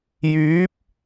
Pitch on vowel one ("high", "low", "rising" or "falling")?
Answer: rising